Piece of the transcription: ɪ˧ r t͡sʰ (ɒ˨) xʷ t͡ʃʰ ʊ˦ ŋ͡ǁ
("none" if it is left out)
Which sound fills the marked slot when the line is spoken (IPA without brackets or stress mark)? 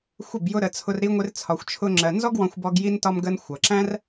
ɒ˧